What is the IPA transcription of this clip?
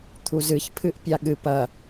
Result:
t̪ʰ u z ɨ ç pʰ ɨ ʔ pʲ a ɠ ɨ p ɐ

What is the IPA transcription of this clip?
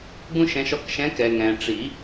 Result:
ɡ ũ˦ ʃ ɛ̃˨˦ ʃ ɔ˨ k ʃ ɛ̃˨˦ k ɛ˨ ŋ ɛ̃˨ ʈ͡ʂ i˨˩˦

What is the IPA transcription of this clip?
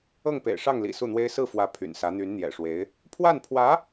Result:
ɤ˥˩ ŋ p ḛ˨˩ ɪ̯ ʂ ɑ˥˩ ŋ l ḭ˨˩ s u˥˩ n̪ w e˥ ɪ̯ s ɹ̩˥˩ f w ä˧˥ pʰ y̰˨˩ n s ä˧˥ n̪ y˧˥ n n̪ j ɛ̰˨˩ ʂ w e˧˥ ɪ̯ | pʰ w a˥˩ n pʰ w ä˧˥

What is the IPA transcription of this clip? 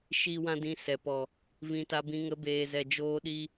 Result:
ʃ i˦ w ã˦ d ĩ˧ s ɛ˨ p ɔ˨ | v ĩ˧ t a˧ b ĩ˧ ŋ ə˧ b eː˨ z ɛ˨ d͡ʒ oː˧ ɗ i˧

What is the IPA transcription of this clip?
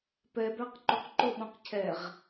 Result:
p ɛ b æ q ǃ o q ǃ ʊ ɓ õ q cʰ ɛ ʁ

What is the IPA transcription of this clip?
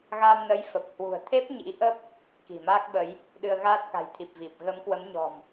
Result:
ɣ a˧ m n ə˨˦ j f ə˨˩ p̚ h w ṳ˨˩ ə̯ t̪ʰ e˦˥ p̚ ɲ ḭ˧˥ ʔ ə˦˥ p̚ | k i̤˨˩ m aː˦˥ k̚ ɓ ə˨˦ j | ɗ ɨ˧ ə̯ ɣ aː˦˥ t̚ k a̤˨˩ j t̪ʰ i˨˩ p̚ v i˨˩ p̚ ɣ ə˨˦ m k w ə˨˦ m ɲ ɔ̤˨˩ m

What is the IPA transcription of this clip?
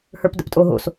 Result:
h ə˞ p d ə̰ p tʼ o ɦ o̰ s

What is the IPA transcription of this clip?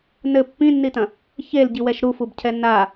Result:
n ɘ pː ĩ nː i t ɐ̃ | ç e l ɟ i w ɛ ʃ ɾ u f u b cʰ ɛ n a

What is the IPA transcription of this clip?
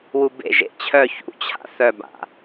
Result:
w u b ḛ ʒ ḛ t͡ɕʰ œ ç ṵ t͡ɕʰ a̰ θ œ b a̰

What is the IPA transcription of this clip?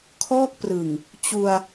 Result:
kʰ ɔː˥˩ k̚ p r ɯ˨˩ ŋ | t͡ɕ u˧ a̯

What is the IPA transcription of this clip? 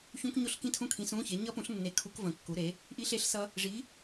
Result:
ç ũ˦˥ k ɲ o˦˥ ɬ k ĩ˦˥ tʰ ũ˦˥ kʰ ĩ˨˥ s ũ˧˥˧ ç e˨˥ ɲ ʌ˦˥ p ũ˨˥ ɬ nː e˨˥ kʰ u˦˥ k v ə̃˧˩ kː u˨˥ ɾ e˨˥ | ʔ i˦˥ ɬ e˦˥ ɬ s ʌ˦˥ | ʐ i˨˥

